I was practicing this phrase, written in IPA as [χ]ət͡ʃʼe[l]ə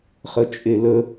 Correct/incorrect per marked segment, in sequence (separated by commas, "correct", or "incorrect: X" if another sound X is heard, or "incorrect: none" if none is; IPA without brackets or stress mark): correct, correct